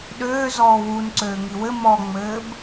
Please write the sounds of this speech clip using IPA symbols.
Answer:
ɗ øː z ɔː w u n ǀ øː ŋ i w ɘ m ɔ ŋ͡m ɘː b

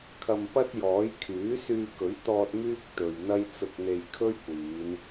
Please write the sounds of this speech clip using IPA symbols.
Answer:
kʰ ɐ˧ m p ɐ˥ t̚ j ɔː˨˥ j kʰ yː˨˥ s yː˧ k ɵ˨˥ ɥ t̪ ɔː˧ t̚ m yː˥ k̚ t̪ ɵ˨ ɥ n̪ ɐ˥ j t͡s ʊ˧ k̚ n̪ e˧ j kʰ ɵ˥ ɥ kʷ iː˨˧ n

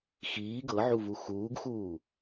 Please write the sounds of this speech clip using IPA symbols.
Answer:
x iː ɡ ɤ ʕ u v u x uː ɡ x uː

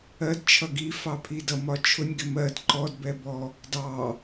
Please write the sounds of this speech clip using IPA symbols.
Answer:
ɜ d t͡ʃʰ ʌ ɡ i f ɑ pʰ i d ʌ m ɒ t͡ʃʰ ʊ nʲ ɡ ɪ m ɜ d ǃ ɔ d b ɛ b ɔ | d ɑ

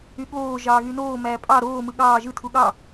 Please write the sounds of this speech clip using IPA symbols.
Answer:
y ɠ oː ʒ ɑː ɣ y n oː m æː pʼ ɑ ɾ oː m ɯ ɠ ɑː ʒ ɯ tʰ u ɠ ɑ

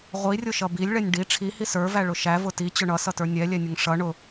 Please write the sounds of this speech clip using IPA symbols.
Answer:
ʁʷ i rʲ ʊ ʃ ʌ b i lʲ ɭ ɛ nʲ ɖ i ʈ͡ʂʰ i h i s ə˞ v æ ɭ ʊ ʃ æ v ʊ t i t͡ɕ ʊ ɳ ʌ s ʌ t ə˞ nʲ ɛ lʲ ɛ nʲ ʊ ŋ ʂ ʌ ɳ ʊ

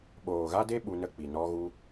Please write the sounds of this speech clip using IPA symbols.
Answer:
ɓ oː˨ ɣ a˦ d e˦ ɓ u˧ n ə˦˨ k͡p i˨ n ɔ˧ ɣ u˧

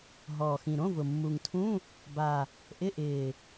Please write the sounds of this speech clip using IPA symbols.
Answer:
ɦ ɔː˨˩ x ĩ˨˩ ɾ õ˧˥˧ v ʊ˨˩ mː u˨˩ ŋ tʰ ũ˧˥˧ | b a˨˩ | ʔ ɪ˧˥˧ ʔ ɪː˨˩

